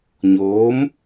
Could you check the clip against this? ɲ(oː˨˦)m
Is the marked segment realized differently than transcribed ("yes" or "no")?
no